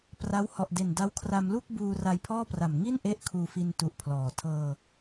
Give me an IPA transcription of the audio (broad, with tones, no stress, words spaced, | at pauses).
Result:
pra˦˥w hɔ˨˩ʔde˨˩nda˦˥w kʰra˧mlu˥˩k̚ buː˧ ra˧jpʰɔː˥˩pra˨˩m ŋi˥˩nʔe˦˥ʔ kʰuː˧fi˧ntu˨˩ʔ pʰlɔː˨˩ tʰɤː˧